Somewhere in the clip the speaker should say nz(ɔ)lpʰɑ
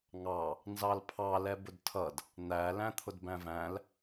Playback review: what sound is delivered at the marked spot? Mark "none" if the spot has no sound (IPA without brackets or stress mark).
ɑ